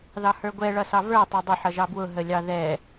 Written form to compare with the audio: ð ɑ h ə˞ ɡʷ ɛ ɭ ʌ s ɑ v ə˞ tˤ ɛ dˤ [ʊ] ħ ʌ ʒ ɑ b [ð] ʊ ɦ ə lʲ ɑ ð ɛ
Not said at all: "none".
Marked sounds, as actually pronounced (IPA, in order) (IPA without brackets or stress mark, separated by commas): ʊ, w